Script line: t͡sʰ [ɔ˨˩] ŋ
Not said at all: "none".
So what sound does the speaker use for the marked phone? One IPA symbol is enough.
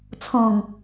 ɔ̃˨˩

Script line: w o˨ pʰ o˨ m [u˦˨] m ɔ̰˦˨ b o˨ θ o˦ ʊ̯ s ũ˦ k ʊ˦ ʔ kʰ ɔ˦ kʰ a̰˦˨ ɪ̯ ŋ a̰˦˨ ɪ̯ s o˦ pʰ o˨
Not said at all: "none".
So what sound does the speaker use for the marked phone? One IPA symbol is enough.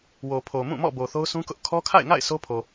ũ˦˨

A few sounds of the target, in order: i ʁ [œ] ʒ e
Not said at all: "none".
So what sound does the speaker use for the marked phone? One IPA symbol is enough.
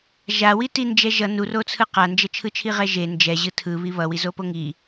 ɛ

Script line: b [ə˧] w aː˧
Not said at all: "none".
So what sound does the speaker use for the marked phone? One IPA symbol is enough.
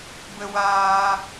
ə˧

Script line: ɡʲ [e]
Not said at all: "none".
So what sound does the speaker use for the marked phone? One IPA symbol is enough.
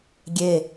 e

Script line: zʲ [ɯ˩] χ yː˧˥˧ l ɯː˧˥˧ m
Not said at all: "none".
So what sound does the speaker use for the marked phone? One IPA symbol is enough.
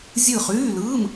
ɯ˦˨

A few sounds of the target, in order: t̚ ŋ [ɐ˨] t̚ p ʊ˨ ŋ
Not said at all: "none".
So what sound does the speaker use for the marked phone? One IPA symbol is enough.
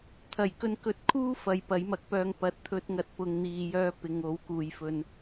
ɐ˨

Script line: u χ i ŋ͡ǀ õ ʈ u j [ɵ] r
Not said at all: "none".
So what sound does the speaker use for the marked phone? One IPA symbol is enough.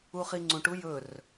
ɵ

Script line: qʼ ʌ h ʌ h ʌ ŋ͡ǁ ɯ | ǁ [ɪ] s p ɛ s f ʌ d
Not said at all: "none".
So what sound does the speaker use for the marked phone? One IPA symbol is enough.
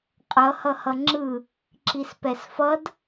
i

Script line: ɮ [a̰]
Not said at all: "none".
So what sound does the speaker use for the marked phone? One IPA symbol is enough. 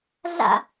a̰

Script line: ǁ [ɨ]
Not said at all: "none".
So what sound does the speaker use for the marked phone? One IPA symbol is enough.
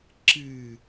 ɨ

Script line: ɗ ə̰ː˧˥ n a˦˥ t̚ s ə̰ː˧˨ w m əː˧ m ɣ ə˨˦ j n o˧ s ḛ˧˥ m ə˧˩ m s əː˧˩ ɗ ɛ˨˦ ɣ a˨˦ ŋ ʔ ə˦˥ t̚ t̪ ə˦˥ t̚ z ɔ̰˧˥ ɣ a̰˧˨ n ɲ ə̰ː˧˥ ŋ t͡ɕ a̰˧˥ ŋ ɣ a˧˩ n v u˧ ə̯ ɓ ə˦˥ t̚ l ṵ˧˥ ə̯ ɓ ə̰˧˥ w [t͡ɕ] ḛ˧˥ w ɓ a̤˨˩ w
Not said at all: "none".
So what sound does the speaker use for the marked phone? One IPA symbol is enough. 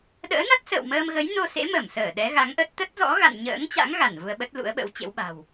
t͡ɕ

